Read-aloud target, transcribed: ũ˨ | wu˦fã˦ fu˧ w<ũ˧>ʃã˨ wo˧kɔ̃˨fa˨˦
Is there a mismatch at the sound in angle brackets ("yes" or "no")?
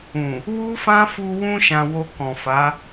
no